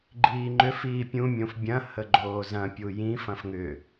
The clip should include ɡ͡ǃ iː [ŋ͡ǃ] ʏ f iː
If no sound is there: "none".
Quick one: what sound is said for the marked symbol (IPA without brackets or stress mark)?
ŋ͡ǃ